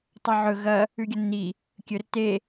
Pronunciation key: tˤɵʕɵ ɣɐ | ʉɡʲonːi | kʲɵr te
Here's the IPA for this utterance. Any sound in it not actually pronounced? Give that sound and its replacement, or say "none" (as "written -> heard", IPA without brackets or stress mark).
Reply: none